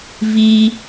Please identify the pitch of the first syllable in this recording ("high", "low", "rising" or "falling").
high